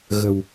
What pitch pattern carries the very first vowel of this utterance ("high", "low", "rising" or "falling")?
low